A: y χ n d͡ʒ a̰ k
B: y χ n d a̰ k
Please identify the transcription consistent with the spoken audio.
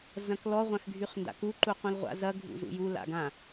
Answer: B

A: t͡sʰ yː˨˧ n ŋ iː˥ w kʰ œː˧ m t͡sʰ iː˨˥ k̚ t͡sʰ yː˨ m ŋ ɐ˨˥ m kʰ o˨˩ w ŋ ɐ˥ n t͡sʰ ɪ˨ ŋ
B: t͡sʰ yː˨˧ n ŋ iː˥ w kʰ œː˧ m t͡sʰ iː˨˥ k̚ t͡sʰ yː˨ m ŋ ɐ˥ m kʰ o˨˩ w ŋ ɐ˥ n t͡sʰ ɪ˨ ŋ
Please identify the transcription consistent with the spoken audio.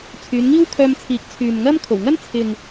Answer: B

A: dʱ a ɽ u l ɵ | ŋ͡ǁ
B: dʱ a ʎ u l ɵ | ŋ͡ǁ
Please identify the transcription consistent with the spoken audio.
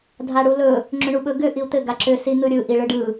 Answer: A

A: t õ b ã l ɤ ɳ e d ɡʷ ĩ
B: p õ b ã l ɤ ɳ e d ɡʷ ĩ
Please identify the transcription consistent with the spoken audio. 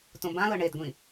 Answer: A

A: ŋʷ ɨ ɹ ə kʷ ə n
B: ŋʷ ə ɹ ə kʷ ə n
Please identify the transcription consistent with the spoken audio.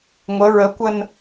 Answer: B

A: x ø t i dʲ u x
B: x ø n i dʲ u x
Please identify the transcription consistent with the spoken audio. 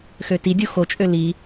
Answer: A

